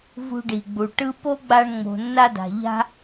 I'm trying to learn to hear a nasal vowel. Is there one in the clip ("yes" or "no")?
no